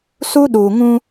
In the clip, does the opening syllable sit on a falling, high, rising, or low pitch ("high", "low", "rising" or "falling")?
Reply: high